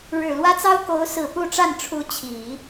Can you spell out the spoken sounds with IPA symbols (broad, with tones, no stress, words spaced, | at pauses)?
ɻɻ̩˨˩lwä˥t͡sɑ˥ʊ̯ ko˧˥ʊ̯sɹ̩˨˩ pu˥˧ʈ͡ʂa˥˩n ʈ͡ʂʰu˧˥ t͡ɕʰi˨˩˦